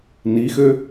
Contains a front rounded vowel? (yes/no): yes